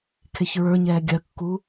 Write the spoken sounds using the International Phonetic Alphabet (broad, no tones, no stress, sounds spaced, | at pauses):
kʰ e ç ɹ ə˞ ɲ ɛː ɡʲ ɜ kː u